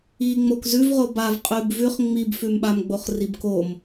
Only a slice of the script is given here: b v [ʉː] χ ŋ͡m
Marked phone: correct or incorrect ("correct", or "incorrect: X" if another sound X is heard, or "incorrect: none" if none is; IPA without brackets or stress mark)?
incorrect: ʉ